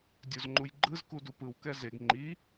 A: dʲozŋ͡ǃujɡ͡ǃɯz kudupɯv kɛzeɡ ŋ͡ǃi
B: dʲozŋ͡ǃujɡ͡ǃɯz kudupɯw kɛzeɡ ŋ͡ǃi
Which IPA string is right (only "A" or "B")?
B